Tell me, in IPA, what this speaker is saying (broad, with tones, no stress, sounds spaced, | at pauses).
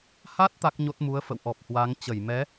h a˦˥ t̚ t̪ a˦˥ k̚ ɲ o˦˥ t̚ m u˨˦ ə̯ f ə̰˧˨ w ʔ ɔ˨˩ p̚ h w a˨˦ ŋ t͡ɕ ə˧˩ j m ɛ˨˦